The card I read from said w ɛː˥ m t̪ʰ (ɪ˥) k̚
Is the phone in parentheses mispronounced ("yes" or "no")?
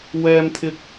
no